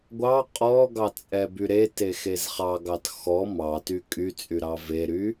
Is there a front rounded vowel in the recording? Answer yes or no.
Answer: yes